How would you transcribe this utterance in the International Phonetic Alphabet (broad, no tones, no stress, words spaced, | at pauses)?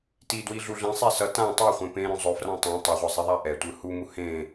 tidwiɮu ɮĩsˤe sʌ tã tˤoχʷẽ pẽɾõ zˤofrã tˤõ tˤʌʁʷʌzˤiðˤa ʔɛtʷɯ humu hẽ